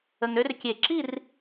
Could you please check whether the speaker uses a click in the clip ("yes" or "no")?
yes